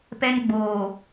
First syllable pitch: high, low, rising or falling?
high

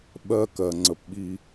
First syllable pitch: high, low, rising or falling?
high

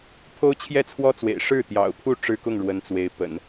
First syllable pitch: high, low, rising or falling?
high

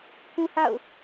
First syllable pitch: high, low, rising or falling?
high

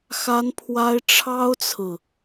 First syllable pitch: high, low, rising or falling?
high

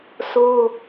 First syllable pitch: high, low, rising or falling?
high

